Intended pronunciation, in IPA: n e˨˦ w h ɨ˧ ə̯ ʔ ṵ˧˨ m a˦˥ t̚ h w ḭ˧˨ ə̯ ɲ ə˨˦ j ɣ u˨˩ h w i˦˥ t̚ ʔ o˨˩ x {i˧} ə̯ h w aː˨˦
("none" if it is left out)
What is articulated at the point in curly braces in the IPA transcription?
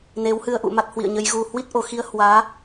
i˧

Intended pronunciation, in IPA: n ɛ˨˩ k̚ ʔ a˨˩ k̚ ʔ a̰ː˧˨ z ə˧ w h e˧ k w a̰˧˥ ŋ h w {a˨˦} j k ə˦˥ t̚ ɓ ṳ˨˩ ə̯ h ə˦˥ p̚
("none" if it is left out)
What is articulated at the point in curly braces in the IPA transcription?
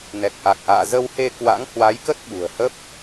a˨˦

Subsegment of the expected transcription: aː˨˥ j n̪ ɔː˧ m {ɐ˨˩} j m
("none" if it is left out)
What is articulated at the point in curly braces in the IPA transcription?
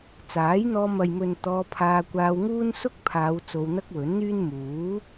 ɐ˨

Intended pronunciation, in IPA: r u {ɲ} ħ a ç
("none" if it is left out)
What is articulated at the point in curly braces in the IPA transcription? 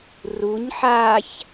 ɲ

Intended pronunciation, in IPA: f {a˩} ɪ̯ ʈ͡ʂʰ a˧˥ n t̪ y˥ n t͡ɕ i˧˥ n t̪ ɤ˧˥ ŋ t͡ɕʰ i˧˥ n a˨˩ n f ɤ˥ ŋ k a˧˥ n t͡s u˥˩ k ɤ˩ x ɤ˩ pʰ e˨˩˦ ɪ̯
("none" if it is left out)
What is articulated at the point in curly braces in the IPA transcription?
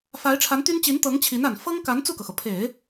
a˧˥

